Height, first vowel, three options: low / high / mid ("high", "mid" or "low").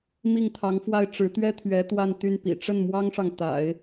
high